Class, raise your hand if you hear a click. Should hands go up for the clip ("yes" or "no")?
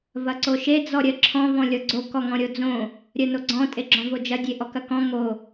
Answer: yes